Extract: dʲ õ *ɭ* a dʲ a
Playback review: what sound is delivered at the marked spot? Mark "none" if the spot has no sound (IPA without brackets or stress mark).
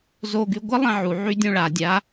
ɭ